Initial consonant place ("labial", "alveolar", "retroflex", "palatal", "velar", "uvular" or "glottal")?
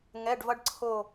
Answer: velar